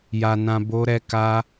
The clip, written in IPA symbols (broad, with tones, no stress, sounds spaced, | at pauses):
j a˧ n ã˧ b o˦ ɾ ɛ˦ k a˦